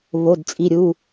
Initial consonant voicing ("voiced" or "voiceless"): voiced